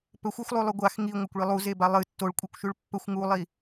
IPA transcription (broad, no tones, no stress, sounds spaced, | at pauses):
p ɵ xʷ ɵ xʷ lˠ ʉ lˠ ʉ ɡʷ a x ŋ i ŋʷ ɐ kʷ ɭ i lˠ u z e b a lˠ ɨ tː o ɭ kʷʼ i kʷ ʃ ʉ ɭ pː ɵ xʷ ŋ u lˠ i